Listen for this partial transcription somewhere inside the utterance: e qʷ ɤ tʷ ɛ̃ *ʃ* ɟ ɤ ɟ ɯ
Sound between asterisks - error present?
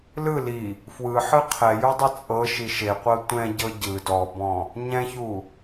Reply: yes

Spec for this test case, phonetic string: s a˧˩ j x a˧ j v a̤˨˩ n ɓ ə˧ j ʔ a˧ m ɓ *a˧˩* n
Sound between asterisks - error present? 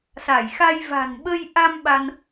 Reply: yes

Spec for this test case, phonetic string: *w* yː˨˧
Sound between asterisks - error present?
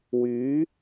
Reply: no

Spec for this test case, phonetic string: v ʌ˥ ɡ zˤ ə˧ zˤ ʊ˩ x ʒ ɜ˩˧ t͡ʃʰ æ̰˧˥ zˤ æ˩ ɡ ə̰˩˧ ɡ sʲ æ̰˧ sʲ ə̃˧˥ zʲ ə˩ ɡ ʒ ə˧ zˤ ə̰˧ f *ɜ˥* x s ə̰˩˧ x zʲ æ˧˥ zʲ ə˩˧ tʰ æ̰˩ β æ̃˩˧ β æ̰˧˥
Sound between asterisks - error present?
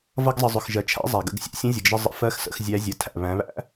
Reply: yes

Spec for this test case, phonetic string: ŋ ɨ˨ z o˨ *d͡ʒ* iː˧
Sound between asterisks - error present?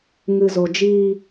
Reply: no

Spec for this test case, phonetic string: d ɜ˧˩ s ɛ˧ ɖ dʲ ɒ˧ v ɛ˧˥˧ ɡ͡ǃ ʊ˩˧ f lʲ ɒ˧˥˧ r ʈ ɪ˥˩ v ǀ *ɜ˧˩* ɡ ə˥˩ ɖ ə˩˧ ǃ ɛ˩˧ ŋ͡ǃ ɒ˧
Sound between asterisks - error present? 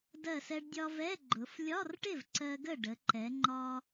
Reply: yes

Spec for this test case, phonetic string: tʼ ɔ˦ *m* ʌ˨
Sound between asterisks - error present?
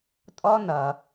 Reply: yes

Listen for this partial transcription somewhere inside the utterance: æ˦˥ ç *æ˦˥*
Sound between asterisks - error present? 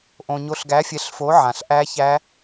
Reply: no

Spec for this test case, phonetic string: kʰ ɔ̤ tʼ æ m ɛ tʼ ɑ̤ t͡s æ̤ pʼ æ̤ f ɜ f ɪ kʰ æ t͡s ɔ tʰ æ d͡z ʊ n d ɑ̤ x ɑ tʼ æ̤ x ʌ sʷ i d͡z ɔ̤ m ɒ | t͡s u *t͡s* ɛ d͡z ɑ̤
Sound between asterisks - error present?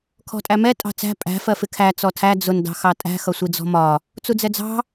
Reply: yes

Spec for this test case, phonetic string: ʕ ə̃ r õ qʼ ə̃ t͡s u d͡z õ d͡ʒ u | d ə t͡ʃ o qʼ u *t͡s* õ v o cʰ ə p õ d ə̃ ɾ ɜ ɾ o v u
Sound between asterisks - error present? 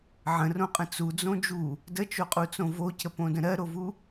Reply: no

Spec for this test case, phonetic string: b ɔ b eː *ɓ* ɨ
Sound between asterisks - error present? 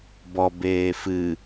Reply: yes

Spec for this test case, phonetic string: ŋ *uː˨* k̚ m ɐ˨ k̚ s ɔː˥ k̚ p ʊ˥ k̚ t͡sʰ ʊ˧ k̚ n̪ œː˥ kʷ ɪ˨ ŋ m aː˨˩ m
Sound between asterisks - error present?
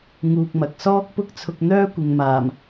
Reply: yes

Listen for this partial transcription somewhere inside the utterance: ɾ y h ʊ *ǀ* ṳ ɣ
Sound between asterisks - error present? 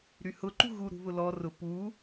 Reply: yes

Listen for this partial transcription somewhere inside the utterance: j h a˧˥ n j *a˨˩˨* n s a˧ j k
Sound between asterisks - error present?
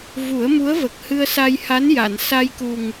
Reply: no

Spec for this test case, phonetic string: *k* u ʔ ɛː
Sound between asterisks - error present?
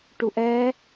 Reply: yes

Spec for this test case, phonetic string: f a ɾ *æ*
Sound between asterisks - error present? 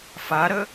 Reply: yes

